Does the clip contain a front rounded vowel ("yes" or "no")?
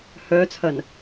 yes